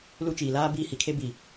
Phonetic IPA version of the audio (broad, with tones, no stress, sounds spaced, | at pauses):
l u˦ t͡ʃ iː˨ l aː˦ b iː˦ h i˨ kʰ e˦ b i˨